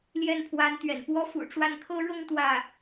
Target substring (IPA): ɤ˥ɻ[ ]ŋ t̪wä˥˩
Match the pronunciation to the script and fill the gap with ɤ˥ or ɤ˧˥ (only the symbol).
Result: ɤ˥